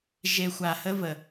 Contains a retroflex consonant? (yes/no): no